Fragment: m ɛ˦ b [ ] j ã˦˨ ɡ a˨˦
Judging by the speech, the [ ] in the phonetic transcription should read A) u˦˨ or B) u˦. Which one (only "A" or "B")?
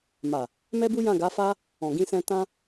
B